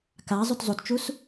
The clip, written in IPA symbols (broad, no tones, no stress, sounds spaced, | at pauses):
k a zˤ u t zˤ u t t͡ʃ u s